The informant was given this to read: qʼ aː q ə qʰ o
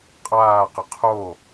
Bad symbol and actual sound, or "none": none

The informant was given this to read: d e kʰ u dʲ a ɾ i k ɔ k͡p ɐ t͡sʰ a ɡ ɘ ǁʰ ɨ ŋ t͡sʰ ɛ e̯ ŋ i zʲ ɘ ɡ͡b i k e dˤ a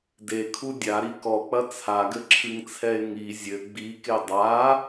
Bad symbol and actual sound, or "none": none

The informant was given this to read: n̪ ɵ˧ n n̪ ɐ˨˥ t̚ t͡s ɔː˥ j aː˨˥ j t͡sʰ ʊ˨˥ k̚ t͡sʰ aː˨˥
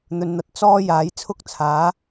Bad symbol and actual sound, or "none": ʊ˨˥ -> ʊ˥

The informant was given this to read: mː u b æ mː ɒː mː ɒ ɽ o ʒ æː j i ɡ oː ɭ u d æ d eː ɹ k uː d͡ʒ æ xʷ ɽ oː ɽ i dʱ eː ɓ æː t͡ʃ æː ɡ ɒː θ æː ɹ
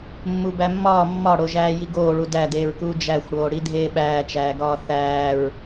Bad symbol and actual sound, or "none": none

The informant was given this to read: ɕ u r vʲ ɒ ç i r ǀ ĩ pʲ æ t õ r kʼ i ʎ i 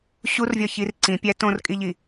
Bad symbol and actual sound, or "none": none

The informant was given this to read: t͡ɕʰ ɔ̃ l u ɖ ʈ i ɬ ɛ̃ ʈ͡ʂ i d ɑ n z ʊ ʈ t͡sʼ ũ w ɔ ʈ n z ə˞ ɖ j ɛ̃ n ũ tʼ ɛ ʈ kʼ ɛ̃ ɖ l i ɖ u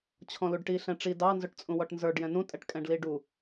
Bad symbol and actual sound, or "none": none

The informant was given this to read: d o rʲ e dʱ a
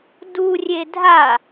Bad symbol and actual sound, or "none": o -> u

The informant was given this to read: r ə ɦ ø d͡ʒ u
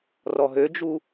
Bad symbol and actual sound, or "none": ə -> ɔ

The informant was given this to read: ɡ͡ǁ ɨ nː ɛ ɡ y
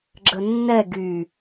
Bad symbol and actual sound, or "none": ɨ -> ə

